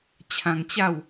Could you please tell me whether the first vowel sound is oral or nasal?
nasal